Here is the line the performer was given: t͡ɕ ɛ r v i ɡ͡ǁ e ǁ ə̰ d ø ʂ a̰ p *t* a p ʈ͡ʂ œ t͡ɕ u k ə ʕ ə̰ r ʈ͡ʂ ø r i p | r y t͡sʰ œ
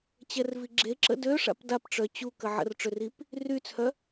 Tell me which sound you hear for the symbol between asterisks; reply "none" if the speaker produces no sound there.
d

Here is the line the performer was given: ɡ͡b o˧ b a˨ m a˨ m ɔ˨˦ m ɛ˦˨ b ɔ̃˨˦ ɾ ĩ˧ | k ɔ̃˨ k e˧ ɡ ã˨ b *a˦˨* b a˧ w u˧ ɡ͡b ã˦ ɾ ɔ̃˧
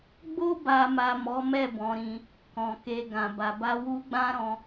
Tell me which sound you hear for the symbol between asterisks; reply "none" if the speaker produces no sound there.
a˨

